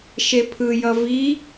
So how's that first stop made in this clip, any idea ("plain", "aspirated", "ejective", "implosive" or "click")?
aspirated